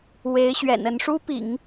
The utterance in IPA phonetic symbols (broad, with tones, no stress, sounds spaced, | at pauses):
w e˧˥ ɪ̯ ɕ ɥ ɛ̰˨˩ n ə˧˥ n ʂ u˥ p ḭ˨˩˦ ŋ